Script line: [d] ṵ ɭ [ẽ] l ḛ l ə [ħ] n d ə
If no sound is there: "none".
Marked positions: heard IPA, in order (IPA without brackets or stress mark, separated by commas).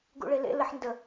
ɡ, e, ħ